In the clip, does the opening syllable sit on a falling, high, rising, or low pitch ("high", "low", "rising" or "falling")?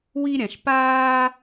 high